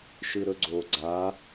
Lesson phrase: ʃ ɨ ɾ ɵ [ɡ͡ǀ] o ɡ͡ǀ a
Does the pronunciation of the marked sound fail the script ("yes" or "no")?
no